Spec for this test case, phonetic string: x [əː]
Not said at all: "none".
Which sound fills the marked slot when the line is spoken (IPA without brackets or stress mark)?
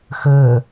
əː